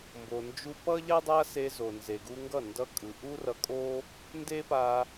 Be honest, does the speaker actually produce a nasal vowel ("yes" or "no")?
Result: no